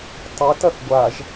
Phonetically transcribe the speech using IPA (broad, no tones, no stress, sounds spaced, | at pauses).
tˤ i t ɐ θ ɡʷ a ʒ